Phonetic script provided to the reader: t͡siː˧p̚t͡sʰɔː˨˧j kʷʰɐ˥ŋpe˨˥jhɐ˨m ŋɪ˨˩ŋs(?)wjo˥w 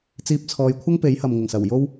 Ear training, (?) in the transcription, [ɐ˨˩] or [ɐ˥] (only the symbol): ɐ˨˩